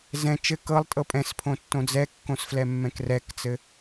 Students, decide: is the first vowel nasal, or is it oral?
nasal